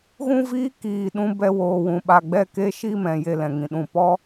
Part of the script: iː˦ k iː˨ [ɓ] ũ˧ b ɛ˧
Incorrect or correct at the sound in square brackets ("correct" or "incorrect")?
incorrect